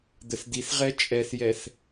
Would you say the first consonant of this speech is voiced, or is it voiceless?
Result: voiced